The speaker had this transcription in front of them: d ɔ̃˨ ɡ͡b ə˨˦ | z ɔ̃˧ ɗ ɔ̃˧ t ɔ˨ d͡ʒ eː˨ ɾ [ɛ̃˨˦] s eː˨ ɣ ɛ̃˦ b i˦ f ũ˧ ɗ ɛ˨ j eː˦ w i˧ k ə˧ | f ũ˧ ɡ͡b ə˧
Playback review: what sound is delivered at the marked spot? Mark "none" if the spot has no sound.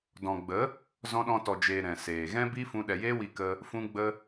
ɛ̃˨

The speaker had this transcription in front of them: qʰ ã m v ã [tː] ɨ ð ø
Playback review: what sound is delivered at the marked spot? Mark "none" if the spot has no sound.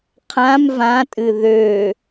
tʼ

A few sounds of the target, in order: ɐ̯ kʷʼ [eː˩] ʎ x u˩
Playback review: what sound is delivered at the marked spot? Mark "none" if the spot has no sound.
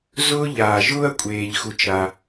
eː˩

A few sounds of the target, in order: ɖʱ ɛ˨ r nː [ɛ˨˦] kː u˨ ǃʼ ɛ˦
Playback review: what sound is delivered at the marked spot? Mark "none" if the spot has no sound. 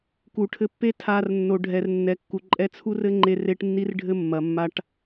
ɛ˨˦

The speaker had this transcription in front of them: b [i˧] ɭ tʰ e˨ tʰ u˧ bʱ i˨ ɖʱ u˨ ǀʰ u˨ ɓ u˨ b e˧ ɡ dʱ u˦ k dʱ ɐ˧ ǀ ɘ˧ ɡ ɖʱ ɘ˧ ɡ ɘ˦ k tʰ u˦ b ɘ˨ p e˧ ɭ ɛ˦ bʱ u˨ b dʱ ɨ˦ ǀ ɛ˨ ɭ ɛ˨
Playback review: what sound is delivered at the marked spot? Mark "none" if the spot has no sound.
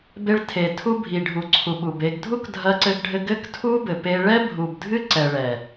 e˧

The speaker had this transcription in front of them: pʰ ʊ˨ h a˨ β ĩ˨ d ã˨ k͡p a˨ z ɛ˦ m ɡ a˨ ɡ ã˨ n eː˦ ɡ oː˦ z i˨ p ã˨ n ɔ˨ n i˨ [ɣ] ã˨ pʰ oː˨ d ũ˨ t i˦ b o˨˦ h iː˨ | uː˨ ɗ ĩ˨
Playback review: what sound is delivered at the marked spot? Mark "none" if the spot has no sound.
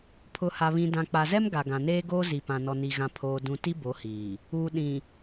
ɣ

